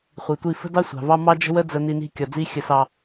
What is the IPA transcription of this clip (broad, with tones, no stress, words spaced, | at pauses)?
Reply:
χʷi˨tʷi˦˨ fə̤˦dɑ˦sʷɑ̤˨vɑ˦ mɑ˦d͡ʒə̤˦wə˦ d͡zə˨ ni˦ni̤˦ kʲɒ˨d͡zi˦ xʲə˦sɑ˦